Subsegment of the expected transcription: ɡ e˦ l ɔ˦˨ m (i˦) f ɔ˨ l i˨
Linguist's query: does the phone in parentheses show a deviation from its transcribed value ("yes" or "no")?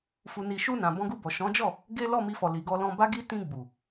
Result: yes